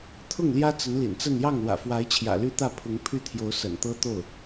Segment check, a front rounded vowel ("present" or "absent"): present